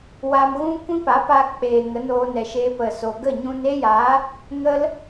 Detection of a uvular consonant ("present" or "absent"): absent